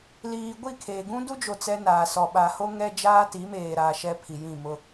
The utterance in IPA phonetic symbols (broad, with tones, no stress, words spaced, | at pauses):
liː˨ɡʷi˦˨ kʰeː˨ɡũ˦ du˦d͡ʒo˨ t͡sɛ˦naː˨sɔ˨ ɓa˨ho˦ ŋɛ˦ d͡ʒaː˦ti˨˦meː˨ɾaː˨ ʃɛ˦ pʰi˨jĩ˦˨mʊ˦